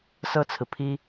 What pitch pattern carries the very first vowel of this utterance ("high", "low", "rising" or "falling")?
high